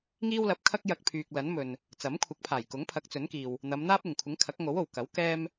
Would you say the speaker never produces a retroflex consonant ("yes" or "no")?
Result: yes